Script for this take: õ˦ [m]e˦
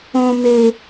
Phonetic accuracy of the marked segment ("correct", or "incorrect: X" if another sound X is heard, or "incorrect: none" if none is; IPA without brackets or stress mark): correct